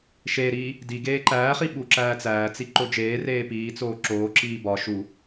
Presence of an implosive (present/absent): present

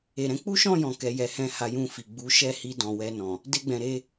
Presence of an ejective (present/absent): absent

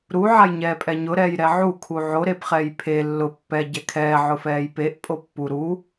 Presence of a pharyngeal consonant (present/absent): present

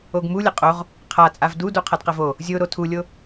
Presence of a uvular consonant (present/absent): present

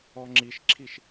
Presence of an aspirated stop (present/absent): present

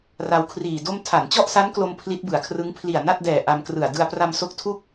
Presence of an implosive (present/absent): absent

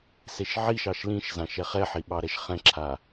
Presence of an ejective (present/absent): absent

